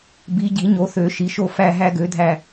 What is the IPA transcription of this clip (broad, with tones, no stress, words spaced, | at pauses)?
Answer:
bi˨˦ ɟi˨˩˦ɲo˨˦θø˨˩˦ ʃi˨˩˦ʃo˦˨ fæ˦˨ ɦæ˦ɡø˨˦dʱæ˦˨